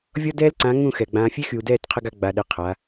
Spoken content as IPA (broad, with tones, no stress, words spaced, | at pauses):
vʲɔ˦dɛː˦lǀã˨˦ ŋũ˦˨xɛ˨ ɡ͡bãː˨fʲe˦xy˨u̯dɛː˦˨t qʰə˦ɡa˦ ɡ͡ba˨ɗe˨ qʰa˨˦